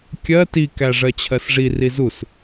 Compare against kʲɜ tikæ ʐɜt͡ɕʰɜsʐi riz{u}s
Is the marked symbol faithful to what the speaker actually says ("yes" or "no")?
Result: yes